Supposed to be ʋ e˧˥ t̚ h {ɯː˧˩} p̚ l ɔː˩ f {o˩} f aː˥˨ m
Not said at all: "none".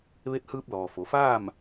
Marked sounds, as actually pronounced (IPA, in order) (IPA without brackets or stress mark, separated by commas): ɯː˧, o˩˧